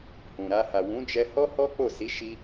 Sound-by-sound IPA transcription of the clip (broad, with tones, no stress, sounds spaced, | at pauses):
h ũ˨ ɾ a˧ h a˨ w ũ˨˦ d͡ʒ ɛ˧ h ɔ˦ h ɔ˦ k͡p o˦˨ s i˨˦ ʃ i˧